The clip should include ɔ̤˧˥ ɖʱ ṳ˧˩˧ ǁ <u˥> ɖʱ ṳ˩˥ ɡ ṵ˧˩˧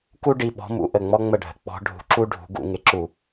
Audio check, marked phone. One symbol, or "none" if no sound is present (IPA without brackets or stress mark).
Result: u˥